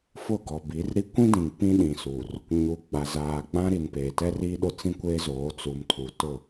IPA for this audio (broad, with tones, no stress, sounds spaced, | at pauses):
f ʊ˦˨ ɡ ɔ˨ b i˨˦ r ɾ i˦ kʷ ĩ˦ d ĩ˨ ŋ p ĩ˦ ɗ ĩ˨ s u˨ r | ɲ u˨ ɡ͡b a˨ z aː˨ ɡ͡b ã˦ ɾ i˨ n p eː˨ t ɛ˦ r iː˦ ɗ ʊ˦ t͡s ĩ˦ kʷ eː˦ z oː˨˦ t͡s u˨ m tʰ u˨ t ʊ˦˨